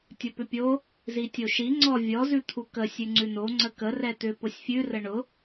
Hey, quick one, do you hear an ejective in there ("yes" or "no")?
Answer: no